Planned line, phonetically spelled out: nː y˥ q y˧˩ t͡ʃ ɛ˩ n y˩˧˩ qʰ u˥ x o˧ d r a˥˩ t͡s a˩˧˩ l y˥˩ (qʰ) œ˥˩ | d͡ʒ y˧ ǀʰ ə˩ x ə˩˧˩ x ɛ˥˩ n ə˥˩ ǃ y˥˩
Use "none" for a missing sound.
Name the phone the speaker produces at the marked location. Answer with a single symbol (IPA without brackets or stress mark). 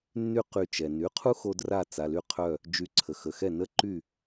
qʰ